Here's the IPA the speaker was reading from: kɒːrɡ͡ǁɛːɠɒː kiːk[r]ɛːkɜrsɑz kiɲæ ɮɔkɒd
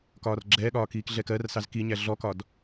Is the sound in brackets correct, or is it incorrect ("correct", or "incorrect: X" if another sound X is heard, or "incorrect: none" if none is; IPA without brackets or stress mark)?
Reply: incorrect: ɮ